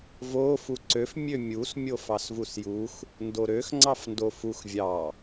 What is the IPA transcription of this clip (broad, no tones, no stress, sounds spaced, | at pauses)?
v o f u ǀ ø f mʲ ø mʲ u s mʲ o f ɑ s v u s j u x | n d o ɾ ø x ŋ͡ǀ ɑ f n d o f u x vʲ ɑ